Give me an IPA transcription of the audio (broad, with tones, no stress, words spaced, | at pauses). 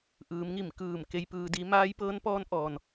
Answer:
ʔɯː˩˧mŋi˧˩mkɯː˧˩m ke˧jpɯː˧di˧˥ maː˧˥jpɤː˧˥npɔː˧˥n ʔɔː˩n